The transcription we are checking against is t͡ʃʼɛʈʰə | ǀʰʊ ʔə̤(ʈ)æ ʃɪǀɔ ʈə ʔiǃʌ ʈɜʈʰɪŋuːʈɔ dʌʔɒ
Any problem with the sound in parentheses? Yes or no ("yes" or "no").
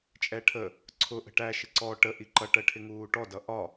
no